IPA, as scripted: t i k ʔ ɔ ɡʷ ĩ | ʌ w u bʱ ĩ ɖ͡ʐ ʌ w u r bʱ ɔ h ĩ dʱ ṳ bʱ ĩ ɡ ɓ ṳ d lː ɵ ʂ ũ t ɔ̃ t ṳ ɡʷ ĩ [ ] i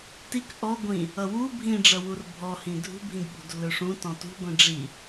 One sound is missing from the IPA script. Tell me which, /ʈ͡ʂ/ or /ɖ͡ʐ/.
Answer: ɖ͡ʐ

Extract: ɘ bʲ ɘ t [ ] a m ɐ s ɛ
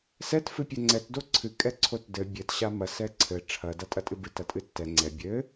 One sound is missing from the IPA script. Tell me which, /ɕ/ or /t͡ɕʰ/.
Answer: ɕ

